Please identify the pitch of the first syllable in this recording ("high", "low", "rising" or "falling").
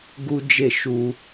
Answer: high